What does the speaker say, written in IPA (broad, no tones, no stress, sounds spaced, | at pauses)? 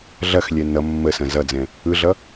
ɮ ɐ x lʲ ɛ n ʌ mː ə s ɐ̃ z ʌ d͡z ɛ̃ | ɯ ɮ ʌ